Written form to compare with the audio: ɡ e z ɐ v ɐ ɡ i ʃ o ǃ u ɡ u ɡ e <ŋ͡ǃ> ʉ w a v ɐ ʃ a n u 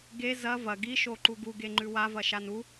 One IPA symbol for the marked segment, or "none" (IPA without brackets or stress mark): ŋ͡ǃ